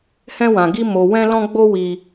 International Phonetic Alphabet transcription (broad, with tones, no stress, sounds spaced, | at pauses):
h ɛ̃˦ w ã˧ ɡ i˦ m o˧ w ɛ̃˦ l ɔ̃˦ ɡ͡b o˦ w i˦